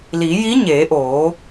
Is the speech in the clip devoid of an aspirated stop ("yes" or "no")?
yes